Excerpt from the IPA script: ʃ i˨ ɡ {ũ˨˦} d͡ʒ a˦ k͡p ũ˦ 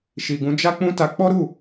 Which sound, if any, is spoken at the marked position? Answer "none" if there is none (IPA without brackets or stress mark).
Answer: ũ˨˦